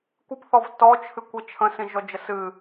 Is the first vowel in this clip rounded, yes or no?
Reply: no